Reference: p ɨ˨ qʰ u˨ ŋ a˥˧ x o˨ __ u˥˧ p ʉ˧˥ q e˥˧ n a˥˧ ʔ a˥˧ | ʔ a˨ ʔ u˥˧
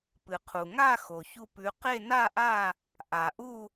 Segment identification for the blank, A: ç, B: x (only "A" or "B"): A